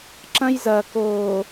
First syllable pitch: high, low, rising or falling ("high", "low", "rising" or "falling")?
high